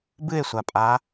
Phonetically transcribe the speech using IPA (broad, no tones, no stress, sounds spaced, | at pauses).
b ɨ e̯ sʷ a pʼ a